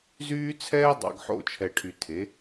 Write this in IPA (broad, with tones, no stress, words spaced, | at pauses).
zyː˦t͡sʰɛː˦dˤɑ̰˨ɡ ħo̰˦˨t͡ʃʰɛ˨ʈʰy˨ tʰe˨˦